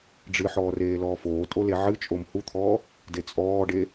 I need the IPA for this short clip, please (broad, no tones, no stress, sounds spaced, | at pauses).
ɖ͡ʐ ɨ ħ ɔː r eː l ɔː f oː tʼ o l e ʕ ɨ t͡ʃʼ o m h u t̪ʰ ɔː | d e t͡sʼ ɔː ɖ e